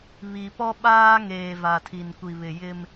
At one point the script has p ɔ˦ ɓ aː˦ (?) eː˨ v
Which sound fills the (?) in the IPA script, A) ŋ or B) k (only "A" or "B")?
A